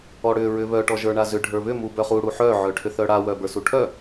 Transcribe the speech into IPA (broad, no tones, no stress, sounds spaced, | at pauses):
ɔ ɽ ʏ ɹ ʏ β œ ʈ ɔ ʒ ə˞ ɳ a z ʏ ɖʱ ə˞ β ʏ m u b œ χ u ɽ u ħ œ ʕ œ ʈʰ ʏ θ œ ɽ a w œ b ə˞ s u ʈʰ œ